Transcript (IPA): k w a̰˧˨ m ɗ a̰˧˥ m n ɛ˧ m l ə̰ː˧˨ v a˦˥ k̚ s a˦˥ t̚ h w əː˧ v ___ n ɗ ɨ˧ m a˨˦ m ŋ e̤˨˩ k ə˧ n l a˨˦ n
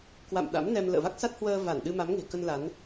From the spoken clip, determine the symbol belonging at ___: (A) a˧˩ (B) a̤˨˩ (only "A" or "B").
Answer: A